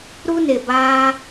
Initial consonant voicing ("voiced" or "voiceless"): voiced